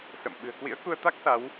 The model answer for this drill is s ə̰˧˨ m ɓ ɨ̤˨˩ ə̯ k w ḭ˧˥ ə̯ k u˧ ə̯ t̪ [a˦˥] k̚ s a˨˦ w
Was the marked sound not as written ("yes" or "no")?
no